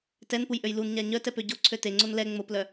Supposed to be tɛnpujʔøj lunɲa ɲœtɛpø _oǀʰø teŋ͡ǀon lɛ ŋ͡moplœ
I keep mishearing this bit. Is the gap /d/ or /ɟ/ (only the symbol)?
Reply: ɟ